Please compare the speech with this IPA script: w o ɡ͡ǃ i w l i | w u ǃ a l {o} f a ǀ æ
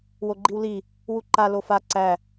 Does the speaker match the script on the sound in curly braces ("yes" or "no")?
yes